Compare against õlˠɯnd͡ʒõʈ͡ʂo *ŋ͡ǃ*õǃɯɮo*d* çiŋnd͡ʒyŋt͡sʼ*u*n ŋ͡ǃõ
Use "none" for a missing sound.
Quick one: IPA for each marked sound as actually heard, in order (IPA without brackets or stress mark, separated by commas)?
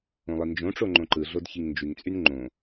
ŋ͡ǃ, d, y